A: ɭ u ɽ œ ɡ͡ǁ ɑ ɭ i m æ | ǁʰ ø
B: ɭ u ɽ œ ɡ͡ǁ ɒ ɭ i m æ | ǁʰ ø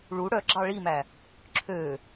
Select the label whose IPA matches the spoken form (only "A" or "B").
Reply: A